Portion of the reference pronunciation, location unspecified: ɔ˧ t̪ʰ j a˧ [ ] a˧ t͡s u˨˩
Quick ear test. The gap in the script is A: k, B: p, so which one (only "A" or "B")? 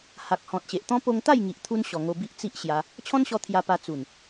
B